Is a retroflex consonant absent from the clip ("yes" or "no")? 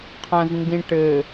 no